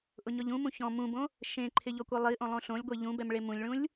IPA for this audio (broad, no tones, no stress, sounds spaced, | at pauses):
ʔ ʊ ɲ ɔ ʎ ũ m ũ ç ɔ̃ m ũ b õ | ʃ ẽ ǃʰ ɪ ʎ ɔ kʷ ɛ lˠ i ʔ õ lˠ õ ɬ õ lʲ ɡʷ e ʎ ũ b ɛ m ɭ e m ũ lʲ ɭ ũ lʲ